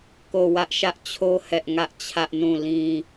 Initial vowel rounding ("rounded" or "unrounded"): rounded